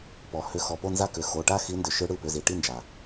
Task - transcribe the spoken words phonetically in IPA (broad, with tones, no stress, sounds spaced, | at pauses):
p ɔ˩ h ʏ˨˦ x ɔ˩˧˩ p o˥˨ n z a˥˨ k ʏ˩˧˩ x o˩˧˩ ʈ a˥˨ x i˨˦ n d ʏ˩ ʃ ɯ˨˦ ɽ ɯ˩˧˩ p ʏ˩˧˩ z i˩ ʈ i˥˨ n d͡ʒ a˩